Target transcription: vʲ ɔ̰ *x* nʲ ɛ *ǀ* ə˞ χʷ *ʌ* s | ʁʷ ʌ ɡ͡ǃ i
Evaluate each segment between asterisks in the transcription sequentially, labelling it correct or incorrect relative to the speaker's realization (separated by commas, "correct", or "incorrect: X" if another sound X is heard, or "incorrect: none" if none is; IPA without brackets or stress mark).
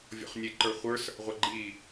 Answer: incorrect: χ, incorrect: ǃ, incorrect: ə˞